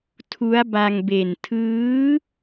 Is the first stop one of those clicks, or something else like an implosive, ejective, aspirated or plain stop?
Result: aspirated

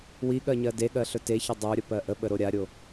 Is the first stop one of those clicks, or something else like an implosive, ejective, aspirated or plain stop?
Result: implosive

